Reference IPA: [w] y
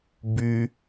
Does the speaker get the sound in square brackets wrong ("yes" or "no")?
yes